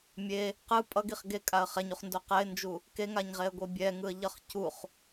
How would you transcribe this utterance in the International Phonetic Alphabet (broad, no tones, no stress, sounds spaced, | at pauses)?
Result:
mʲ e | q ɯ pʼ ʌ ɡ i χ ɡ e kʼ a ə̯ χ ɛ ɲ u χ n d o q ɛ ɪ̯ n d͡ʒ u | k e ŋ a ɲ ʁ e ə̯ ɡʷ e bʲ ɛ ŋ ɯ ə̯ ʎ ʌ χ c u χ